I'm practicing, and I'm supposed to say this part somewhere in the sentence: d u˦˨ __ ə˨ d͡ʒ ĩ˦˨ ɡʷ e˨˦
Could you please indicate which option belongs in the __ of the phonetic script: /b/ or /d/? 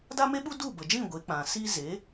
b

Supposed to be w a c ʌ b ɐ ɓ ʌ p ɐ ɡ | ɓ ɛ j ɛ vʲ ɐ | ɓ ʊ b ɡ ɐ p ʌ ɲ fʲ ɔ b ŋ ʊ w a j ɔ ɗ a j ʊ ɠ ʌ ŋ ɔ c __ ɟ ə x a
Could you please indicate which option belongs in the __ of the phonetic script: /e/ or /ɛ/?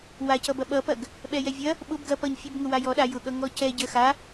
ɛ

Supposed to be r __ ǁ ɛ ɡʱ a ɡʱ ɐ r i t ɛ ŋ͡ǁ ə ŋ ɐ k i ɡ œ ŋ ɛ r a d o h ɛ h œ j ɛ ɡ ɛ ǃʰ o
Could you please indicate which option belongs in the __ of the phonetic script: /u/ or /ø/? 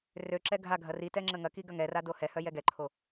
ø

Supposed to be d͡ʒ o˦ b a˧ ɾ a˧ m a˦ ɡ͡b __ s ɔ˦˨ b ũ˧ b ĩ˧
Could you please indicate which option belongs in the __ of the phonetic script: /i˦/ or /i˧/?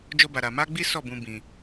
i˦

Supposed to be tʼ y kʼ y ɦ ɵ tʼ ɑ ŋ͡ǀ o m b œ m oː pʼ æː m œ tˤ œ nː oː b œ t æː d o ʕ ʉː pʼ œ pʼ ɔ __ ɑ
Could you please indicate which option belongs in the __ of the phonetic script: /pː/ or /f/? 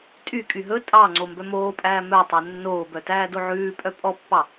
pː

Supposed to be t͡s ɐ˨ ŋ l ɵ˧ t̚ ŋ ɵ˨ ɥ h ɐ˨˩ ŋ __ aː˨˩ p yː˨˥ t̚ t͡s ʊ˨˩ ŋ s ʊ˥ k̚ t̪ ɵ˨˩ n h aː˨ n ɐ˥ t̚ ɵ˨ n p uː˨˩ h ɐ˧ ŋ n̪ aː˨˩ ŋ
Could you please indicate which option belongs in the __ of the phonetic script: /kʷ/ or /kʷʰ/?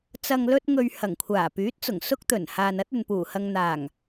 kʷʰ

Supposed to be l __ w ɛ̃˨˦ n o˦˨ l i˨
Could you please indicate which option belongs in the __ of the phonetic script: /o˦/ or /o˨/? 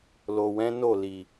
o˨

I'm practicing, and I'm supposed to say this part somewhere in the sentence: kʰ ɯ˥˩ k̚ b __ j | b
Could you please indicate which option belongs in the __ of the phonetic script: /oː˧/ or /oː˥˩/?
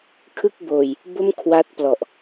oː˧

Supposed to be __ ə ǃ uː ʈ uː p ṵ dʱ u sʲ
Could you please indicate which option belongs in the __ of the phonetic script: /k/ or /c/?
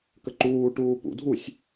k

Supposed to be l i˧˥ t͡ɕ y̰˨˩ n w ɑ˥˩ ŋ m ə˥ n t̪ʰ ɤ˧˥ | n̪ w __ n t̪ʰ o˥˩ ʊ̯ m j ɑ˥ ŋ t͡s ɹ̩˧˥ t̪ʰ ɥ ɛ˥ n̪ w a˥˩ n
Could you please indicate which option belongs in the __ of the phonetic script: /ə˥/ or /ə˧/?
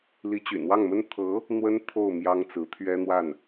ə˥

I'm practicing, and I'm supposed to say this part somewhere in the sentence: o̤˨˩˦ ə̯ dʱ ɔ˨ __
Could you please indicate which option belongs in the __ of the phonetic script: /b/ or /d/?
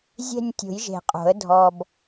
b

